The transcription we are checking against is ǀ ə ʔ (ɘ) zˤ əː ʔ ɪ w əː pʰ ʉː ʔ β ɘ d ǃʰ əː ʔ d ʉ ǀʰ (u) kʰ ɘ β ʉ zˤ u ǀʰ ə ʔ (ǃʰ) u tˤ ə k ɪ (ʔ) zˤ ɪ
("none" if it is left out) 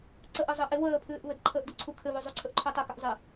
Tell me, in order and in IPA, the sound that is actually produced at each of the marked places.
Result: ɘ, u, ǃʰ, ʔ

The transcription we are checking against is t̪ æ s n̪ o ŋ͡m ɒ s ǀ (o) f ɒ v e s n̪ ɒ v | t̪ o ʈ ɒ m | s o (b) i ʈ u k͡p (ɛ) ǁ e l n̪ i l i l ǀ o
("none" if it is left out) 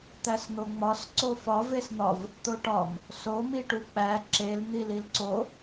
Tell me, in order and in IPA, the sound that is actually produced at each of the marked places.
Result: o, m, æ

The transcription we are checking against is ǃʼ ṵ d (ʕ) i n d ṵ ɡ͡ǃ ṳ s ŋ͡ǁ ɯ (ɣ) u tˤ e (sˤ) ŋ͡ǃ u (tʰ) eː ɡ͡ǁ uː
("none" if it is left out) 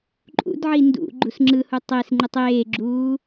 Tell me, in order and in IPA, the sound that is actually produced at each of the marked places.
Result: ʕ, h, s, tˤ

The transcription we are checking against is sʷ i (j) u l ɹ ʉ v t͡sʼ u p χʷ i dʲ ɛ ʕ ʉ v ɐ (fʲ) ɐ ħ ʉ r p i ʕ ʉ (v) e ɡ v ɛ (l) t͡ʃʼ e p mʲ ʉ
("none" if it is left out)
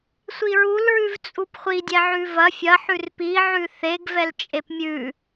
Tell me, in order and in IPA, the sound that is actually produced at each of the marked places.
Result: ɹ, fʲ, θ, l

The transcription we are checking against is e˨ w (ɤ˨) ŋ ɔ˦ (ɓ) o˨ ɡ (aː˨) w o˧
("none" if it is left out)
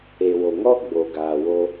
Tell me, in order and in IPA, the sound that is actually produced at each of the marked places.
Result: o˨, ɡ͡b, aː˨

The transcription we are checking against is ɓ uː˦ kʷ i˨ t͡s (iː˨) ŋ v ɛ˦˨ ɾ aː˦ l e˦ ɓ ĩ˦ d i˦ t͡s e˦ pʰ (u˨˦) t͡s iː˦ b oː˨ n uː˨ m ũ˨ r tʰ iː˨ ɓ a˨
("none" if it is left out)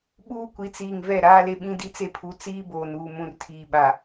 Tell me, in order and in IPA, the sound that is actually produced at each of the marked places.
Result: iː˨, u˨˦

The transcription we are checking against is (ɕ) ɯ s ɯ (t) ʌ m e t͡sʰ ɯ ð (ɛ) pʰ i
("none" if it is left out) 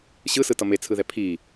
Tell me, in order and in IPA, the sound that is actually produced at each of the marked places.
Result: ɕ, t, ɛ

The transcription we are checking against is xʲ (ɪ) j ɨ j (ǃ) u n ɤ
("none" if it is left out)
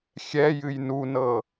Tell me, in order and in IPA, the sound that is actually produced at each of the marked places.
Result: ɛ, n

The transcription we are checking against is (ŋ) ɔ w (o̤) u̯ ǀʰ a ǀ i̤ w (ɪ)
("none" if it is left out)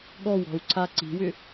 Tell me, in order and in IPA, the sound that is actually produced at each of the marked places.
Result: ɠ, ɔ̤, ʏ

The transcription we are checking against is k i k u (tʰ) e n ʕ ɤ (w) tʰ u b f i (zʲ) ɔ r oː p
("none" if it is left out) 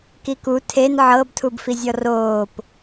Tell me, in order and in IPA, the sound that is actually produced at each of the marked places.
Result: tʰ, b, zʲ

